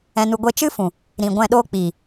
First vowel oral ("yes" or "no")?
no